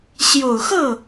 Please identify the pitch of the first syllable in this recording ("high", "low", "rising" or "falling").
low